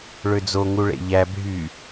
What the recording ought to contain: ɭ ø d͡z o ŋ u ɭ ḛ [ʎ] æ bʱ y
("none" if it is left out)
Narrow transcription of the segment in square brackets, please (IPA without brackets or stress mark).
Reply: ʎ